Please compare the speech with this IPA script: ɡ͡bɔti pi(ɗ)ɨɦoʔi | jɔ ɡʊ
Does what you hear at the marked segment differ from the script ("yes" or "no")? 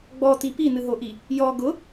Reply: yes